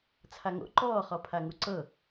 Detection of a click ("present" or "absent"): present